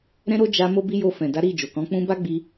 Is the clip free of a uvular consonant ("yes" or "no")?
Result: yes